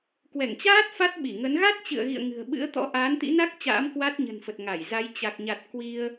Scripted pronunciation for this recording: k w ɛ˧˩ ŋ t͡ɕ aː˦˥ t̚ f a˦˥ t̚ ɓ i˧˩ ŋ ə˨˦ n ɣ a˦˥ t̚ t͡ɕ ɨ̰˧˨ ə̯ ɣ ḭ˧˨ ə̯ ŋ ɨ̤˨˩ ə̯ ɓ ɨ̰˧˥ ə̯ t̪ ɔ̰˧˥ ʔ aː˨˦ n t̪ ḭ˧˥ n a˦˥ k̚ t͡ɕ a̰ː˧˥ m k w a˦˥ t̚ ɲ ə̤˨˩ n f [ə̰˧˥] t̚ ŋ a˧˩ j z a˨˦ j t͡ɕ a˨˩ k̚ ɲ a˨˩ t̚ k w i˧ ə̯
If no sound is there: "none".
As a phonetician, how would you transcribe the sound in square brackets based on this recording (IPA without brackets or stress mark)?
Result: ə˨˩